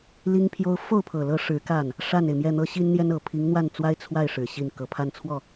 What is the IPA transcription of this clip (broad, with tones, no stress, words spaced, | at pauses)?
li˥ŋpʰjo˥ʊ̯ fo˥˩ʊ̯pʰɤ˨˩lɤ˧˥ ʂɻ̩˧˥ ka˥˩n | ʂa˥˩ne˩ɪ̯mjɛ˥˩n̪ɤ˥ ɕi˥nn̪jɛ˥nɤ˨˩ pʰi˧˥ŋn̪wa˥˩nt͡swa˥ɪ̯ t͡sʰwa˥˩ɪ̯ ʂɻ̩˨˩ɕi˥˩n kɤ˨˩pʰa˥˧nt͡sʰwɔ˥˩